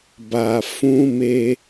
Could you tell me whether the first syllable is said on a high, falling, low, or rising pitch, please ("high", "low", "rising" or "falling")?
low